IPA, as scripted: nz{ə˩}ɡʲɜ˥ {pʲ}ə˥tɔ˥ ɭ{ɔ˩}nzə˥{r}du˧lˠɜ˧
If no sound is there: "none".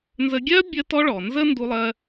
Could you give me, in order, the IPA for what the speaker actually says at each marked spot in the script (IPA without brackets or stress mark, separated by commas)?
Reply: ə˧, bʲ, ɔ˩, n